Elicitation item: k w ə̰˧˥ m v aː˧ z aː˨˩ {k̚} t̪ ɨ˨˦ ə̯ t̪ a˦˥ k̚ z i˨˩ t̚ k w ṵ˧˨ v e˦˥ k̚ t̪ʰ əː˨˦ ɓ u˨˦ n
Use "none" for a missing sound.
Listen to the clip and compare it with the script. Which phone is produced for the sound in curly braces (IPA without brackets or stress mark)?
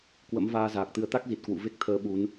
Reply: k̚